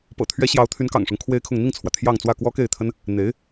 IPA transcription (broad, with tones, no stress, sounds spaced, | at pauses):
p ɤ̰˨˩ t̪ʰ ɥ ɛ˧˥ ɕ j ɑ˧˥ ʊ̯ t̪ʰ y˧˥ n k ɑ̰˨˩ ŋ ʂ ʊ˦ ŋ kʰ w e˥ ɪ̯ kʰ ʊ˥˧ ŋ n̪ i˥˩ ŋ t͡sʰ w ä˩ t̪ʰ j ɑ˥˧ ŋ t͡s w ä˥˩ k w ɔ˥ k e˥˩ ɪ̯ t̪ʰ ə˥ n | n̪ e˧˥ ɪ̯